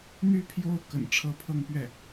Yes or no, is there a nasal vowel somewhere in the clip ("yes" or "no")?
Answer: no